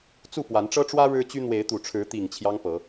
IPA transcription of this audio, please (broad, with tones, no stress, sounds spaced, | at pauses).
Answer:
t͡s u˥˨ p w a˨˦ n ʈ͡ʂ ɤ˦ ʈ͡ʂ w ä˦ ɻ ɻ̩˦ t͡ɕ y˦ n̪ w e˨˦ ɪ̯ t̪ u˨˩ ʈ͡ʂʰ ɻ̩˨˦ t̪ i˨˩ ŋ t͡ɕʰ j ɑ˦ ŋ p ɤ˨˦